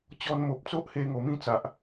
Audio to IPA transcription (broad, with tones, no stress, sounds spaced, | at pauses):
t͡ɕ ɔ˧ n m o˨ p̚ t͡s o˦ ʔ h e˧ ŋ o˨˩ m ĩ˥˧ t͡s a˨ ʔ